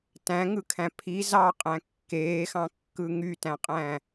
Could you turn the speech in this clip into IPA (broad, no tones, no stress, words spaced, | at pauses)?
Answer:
tæ̃ŋɯkʰæ̃ pʰi zɑqʼæ̃ kːeːxɑ̃kːɯ ŋytæ̃qʼæ̃